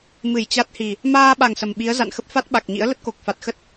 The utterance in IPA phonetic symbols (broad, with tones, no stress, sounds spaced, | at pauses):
m ɨ˧˩ j t͡ɕ a˦˥ t̚ h i˨˩ | m aː˧ ɓ a˨˩ ŋ s ə˨˩ m ɓ i˨˦ ə̯ z a̰˧˨ n x ə˦˥ p̚ f a˦˥ t̚ ɓ a˨˩ k̚ ɲ ḭ˧˥ ə̯ l ə˦˥ t̚ k o˨˩ k̚ f a˨˩ t̚ x ə˦˥ t̚